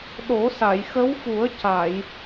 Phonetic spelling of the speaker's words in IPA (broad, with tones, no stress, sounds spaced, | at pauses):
ɗ o˨˩˦ s a˨˩˨ j x ə˧˥ w f u˨˩˦ ə̯ c a˨˩˨ j